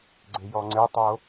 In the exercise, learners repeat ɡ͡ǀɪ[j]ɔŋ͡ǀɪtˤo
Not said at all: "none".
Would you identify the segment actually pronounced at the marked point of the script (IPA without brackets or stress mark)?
j